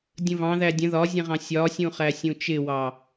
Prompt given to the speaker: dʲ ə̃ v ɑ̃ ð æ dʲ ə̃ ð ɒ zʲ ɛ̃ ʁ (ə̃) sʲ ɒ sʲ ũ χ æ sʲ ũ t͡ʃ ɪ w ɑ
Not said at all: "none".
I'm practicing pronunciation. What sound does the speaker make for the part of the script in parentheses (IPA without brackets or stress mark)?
ɑ̃